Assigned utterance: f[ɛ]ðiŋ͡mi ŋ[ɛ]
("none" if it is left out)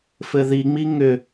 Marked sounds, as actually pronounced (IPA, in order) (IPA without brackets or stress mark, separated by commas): ɘ, ʏ